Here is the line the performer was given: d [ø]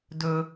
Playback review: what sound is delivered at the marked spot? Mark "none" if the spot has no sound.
ɵ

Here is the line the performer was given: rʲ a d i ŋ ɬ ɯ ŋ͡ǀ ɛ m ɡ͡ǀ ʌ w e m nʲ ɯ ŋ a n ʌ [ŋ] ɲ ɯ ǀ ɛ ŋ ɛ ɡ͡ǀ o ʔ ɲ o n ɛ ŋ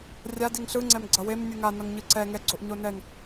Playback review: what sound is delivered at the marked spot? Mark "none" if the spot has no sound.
ŋ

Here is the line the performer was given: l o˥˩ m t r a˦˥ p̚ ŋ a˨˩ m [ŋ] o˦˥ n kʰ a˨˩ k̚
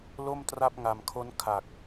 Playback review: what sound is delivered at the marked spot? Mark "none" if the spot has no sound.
kʰ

